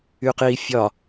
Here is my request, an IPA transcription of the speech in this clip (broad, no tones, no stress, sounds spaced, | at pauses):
y q i fʲ ɒ